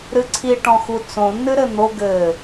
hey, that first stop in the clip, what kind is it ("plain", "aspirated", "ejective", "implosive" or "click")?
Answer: click